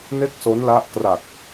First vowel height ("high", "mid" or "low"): mid